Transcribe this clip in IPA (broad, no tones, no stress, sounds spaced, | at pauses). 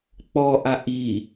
k͡p ɔ ʔ a ʔ i